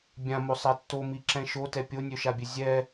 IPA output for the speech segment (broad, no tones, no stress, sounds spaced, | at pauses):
bʲ ã m o sˤ a tː o m i ǁ ɛ̃ ʃ o t ɛ pʲ o nʲ ø ʃ a bʲ e zʲ ɛ